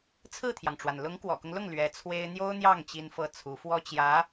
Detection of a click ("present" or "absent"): absent